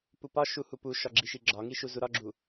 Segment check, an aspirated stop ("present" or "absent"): absent